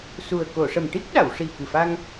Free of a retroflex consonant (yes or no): no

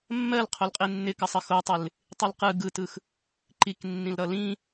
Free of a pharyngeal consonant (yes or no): yes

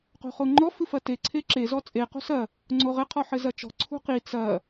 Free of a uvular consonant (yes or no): no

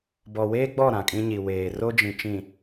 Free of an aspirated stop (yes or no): yes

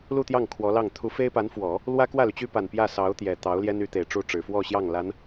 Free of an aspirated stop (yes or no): no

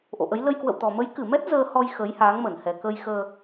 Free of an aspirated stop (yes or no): yes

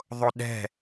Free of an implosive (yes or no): no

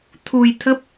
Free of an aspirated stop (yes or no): no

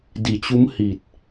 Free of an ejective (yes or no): yes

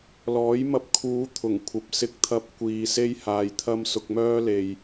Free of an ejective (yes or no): yes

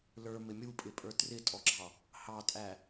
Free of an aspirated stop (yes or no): yes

